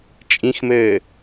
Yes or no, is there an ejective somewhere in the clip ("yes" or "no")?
yes